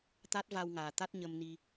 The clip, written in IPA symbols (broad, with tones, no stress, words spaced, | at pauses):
t̪a˦˥t̚va˧wŋaː˨˩t̪a˦˥t̚ ɲə˧mni˧